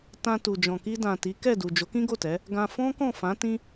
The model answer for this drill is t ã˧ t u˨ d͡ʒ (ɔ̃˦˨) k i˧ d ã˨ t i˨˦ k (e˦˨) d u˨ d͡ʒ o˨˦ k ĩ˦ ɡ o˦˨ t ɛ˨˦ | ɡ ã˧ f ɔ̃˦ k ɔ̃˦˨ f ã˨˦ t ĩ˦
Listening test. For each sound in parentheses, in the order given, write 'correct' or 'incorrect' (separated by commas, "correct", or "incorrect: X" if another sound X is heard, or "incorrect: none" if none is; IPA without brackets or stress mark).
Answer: incorrect: ɔ̃˨, incorrect: ɛ˦˨